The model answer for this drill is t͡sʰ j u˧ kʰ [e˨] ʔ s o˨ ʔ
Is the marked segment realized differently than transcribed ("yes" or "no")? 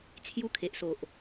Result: no